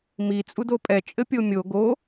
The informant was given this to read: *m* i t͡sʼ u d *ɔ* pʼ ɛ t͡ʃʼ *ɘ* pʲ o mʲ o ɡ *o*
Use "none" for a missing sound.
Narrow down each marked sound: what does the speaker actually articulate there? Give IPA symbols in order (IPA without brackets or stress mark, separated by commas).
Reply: m, o, ɘ, o